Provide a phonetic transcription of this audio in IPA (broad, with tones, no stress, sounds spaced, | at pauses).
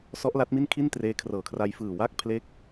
s ɔ˦˥ ʔ l a˦˥ t̚ m i˥˩ n kʰ i˥˩ n t r eː˦˥ kʰ r ɤː˨˩ kʰ r a˧ j f ɯː˨˩ w a˥˩ k̚ pʰ l e˦˥ k̚